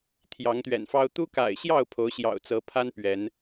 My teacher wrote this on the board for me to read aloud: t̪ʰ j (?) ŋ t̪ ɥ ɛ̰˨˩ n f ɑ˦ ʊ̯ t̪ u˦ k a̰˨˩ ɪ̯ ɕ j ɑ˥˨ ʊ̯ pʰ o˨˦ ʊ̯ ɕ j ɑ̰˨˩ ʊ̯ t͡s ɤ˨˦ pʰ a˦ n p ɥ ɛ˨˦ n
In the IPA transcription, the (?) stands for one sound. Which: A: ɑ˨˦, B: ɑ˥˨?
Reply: A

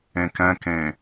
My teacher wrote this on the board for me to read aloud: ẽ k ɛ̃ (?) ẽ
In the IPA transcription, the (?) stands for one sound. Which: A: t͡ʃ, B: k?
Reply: B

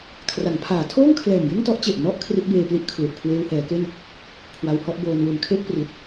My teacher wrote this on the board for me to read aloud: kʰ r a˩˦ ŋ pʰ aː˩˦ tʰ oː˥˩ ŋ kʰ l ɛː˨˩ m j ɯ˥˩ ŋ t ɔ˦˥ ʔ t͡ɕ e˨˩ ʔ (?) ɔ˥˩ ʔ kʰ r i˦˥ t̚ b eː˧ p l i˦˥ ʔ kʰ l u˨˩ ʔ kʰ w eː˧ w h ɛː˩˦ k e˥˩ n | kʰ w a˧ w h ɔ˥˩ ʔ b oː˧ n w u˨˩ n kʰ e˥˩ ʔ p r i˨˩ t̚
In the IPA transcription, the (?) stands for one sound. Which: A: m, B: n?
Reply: B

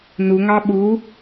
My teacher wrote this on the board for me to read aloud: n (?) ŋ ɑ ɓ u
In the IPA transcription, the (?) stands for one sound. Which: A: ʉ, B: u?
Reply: B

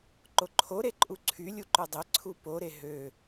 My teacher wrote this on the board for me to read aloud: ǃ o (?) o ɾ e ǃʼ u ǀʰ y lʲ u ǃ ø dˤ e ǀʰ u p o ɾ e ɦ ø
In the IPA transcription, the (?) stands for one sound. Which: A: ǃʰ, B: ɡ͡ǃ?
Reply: A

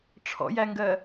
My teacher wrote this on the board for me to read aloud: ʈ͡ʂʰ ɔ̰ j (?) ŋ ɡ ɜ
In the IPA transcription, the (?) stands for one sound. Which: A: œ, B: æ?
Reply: B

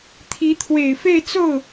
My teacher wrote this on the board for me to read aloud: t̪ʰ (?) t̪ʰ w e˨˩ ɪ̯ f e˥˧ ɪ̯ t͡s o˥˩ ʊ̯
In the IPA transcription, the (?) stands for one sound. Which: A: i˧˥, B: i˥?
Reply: A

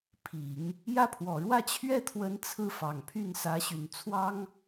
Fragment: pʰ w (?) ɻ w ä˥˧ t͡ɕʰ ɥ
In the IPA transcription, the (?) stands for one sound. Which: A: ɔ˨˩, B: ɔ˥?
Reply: A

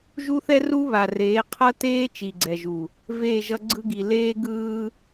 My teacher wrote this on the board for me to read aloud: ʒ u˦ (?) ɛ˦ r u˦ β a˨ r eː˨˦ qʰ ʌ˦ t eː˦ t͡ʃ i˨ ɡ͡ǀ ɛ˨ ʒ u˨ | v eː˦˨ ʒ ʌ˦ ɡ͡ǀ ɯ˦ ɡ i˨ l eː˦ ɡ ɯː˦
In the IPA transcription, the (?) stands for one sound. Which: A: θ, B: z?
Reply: A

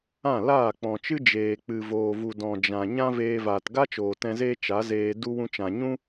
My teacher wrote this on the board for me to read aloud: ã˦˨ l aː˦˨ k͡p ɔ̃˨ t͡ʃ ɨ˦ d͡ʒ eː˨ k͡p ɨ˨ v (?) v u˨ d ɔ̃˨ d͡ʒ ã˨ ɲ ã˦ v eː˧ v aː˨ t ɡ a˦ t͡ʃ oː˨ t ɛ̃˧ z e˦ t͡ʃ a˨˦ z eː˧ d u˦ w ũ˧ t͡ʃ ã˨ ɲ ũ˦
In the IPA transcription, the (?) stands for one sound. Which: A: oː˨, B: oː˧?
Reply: A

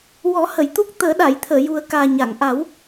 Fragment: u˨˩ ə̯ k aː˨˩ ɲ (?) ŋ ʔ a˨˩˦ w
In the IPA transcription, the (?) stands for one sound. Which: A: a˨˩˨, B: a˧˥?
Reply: A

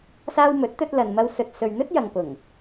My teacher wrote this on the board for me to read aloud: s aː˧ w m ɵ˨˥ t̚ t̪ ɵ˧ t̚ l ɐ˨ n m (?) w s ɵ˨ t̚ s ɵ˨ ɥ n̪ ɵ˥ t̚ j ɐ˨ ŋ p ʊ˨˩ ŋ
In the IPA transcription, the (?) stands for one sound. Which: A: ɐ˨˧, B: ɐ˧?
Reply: B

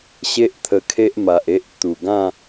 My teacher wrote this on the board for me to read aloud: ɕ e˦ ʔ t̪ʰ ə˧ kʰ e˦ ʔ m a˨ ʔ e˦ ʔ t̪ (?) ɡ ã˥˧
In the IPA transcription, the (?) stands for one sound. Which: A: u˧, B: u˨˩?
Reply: B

